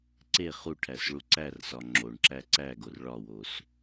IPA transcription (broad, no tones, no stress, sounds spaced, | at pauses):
ǀ e χ u ʈʰ æ s ɭ u ǀ æ r s ɒ ŋ͡ǁ o ɳ ǁ æ ǀ æ ɡ o r ɭ ɒ w o s